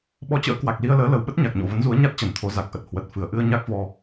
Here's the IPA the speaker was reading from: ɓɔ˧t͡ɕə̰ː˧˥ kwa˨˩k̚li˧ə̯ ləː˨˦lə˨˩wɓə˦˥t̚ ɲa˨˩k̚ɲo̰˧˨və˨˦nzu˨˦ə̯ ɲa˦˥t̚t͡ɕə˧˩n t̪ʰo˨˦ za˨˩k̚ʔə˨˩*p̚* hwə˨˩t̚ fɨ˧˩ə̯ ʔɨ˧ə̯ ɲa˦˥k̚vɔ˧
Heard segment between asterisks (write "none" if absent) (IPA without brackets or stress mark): t̚